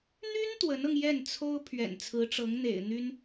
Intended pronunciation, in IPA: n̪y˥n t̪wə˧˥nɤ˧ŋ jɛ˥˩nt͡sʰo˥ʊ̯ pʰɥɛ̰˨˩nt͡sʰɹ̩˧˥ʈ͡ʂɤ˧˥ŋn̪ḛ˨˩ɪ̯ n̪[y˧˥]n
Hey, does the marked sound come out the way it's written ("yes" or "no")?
no